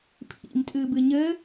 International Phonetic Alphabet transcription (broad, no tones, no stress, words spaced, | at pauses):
pʰḭmtʼɨbɨ ɲɘ